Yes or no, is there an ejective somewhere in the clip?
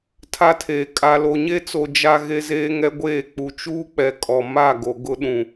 yes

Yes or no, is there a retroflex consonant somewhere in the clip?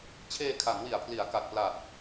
no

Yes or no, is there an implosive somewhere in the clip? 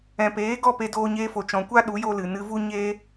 yes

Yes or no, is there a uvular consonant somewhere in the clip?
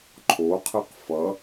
yes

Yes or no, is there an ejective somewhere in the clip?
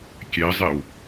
no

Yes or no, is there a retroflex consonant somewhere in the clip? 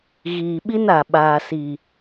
no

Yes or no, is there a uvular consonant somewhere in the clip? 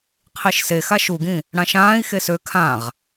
yes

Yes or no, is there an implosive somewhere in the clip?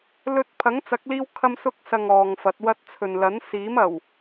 no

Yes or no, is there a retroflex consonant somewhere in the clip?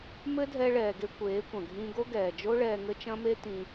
yes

